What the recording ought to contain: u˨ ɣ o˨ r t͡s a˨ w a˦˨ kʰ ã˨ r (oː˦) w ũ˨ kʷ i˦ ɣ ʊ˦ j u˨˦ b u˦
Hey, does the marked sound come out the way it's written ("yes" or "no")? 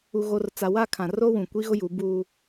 no